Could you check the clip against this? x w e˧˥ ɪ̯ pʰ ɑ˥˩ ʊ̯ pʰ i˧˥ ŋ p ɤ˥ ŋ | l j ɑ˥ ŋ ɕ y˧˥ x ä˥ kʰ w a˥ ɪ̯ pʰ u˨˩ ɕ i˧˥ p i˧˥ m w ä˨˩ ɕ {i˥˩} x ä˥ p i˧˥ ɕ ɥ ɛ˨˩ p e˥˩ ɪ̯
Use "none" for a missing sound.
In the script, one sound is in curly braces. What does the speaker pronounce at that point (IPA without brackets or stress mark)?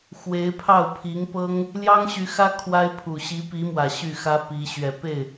y˥˩